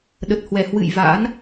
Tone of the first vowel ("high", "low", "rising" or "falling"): low